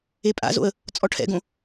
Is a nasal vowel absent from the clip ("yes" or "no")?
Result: no